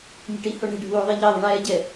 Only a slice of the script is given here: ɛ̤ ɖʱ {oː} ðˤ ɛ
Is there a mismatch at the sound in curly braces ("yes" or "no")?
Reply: yes